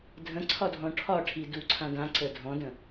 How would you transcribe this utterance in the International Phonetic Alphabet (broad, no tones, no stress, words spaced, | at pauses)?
dʱə̃ǀʰɒdʱɔ̃ ʈʰɒʈʰi duǀʰã dãǀə dʱɔ̃də̃